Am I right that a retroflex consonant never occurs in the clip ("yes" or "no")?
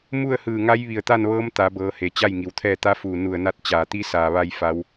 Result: yes